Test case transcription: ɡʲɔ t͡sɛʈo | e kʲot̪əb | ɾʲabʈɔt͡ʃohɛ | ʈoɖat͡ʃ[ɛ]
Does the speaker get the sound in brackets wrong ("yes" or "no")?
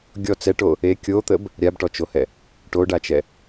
no